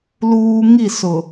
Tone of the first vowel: high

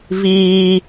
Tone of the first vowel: high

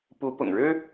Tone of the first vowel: rising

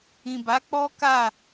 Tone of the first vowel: low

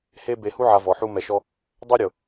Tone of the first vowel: high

